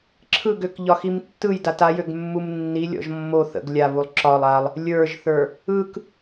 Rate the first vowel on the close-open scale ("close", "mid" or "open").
close